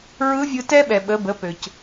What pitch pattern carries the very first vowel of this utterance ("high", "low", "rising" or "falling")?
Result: rising